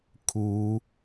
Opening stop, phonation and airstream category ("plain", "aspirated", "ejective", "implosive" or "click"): aspirated